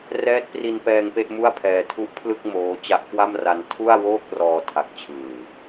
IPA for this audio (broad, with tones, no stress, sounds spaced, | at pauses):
r ɛː˦˥ t̚ p r i˧ n p ɛː˧ ŋ p e˥˩ ʔ m u˥˩ a̯ pʰ ɛː˧ tʰ u˦˥ ʔ pʰ l ɯ˥˩ k̚ m oː˦˥ t͡ɕ a˦˥ ʔ k w a˥˩ m r a˧ n tʰ u˥˩ a̯ w oː˥˩ k̚ r ɔː˧ tʰ a˨˩ k̚ t͡ɕʰ ɯː˨˩